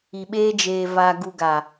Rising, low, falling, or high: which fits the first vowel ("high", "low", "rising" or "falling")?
low